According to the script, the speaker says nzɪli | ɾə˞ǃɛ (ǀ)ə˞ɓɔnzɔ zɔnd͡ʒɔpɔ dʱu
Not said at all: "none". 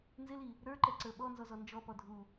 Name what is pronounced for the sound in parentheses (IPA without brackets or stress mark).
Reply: ǀ